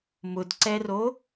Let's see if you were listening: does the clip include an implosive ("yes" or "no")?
no